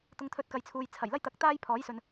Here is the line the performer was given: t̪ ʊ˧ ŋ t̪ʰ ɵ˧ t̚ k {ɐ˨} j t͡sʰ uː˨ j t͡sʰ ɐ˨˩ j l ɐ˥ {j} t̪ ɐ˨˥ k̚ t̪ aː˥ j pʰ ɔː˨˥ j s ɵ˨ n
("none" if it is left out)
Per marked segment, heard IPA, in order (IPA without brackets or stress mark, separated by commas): ɐ˨˧, j